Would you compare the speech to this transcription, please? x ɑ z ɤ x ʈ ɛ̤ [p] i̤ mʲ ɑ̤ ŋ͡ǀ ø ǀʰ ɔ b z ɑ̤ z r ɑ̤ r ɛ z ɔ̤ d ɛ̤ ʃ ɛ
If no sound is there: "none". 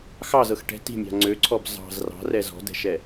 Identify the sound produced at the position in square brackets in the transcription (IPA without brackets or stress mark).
t